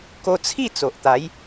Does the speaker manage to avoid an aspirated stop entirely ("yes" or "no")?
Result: no